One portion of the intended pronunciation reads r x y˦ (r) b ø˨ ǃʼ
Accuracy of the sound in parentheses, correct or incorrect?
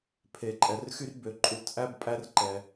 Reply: correct